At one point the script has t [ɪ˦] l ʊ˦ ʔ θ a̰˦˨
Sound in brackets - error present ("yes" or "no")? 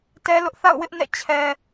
yes